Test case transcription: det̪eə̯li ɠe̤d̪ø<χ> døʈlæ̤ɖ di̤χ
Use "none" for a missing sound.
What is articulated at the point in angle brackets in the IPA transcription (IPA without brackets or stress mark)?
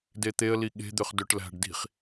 χ